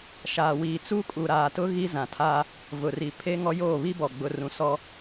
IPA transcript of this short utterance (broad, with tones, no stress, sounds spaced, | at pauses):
ʃ aː˨ w iː˨ t͡s uː˦ kʼ u˨ ɾ aː˨ t ʊ˦ ɣ i˦ z ã˨ tʰ aː˦ | v ʊ˨ r i˨ pʰ eː˦ ŋ ɔ˦ j oː˦˨ β i˦ b ɔ˨ ɡ͡b ʊ˨ r ũ˨ s ɔ˦